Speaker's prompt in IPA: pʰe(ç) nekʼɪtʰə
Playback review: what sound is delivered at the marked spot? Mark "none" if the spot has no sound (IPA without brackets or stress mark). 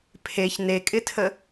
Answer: ç